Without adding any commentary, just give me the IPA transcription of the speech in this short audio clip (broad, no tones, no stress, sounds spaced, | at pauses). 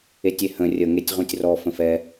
e tʲ e h ə̃ rʲ ə ŋ e tʲ ʁ ũ tʲ r ɔ f ə̃ f ɛ